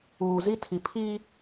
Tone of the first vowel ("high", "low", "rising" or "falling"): low